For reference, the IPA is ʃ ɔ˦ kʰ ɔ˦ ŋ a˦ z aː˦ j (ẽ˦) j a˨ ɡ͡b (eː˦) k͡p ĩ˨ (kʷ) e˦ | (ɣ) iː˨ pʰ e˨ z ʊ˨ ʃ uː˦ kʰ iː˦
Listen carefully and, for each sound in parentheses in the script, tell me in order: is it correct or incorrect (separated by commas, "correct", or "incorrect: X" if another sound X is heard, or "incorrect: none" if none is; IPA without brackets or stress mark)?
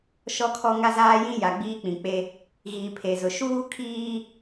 incorrect: ĩ˦, incorrect: iː˦, incorrect: k͡p, correct